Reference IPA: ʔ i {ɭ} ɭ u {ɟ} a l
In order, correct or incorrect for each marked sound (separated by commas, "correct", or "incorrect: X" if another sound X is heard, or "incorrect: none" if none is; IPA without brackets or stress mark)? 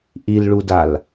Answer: incorrect: l, incorrect: d